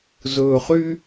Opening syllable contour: low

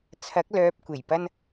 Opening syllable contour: rising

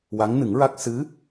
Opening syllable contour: rising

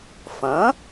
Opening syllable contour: rising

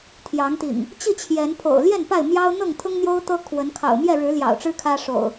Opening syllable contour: rising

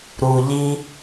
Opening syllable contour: low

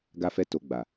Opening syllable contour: high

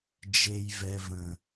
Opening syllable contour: high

